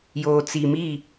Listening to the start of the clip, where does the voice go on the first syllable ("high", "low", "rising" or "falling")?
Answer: low